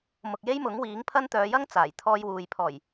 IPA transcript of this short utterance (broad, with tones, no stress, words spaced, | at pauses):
mʊ˨k̚je˥jmʊ˨˥ŋwiː˨˥ŋ pʰɐ˥nt̪œː˨˧jɐ˥ŋ t͡saː˨˩jt̪ʰɔː˧jwuː˨j pʰɔː˨˩j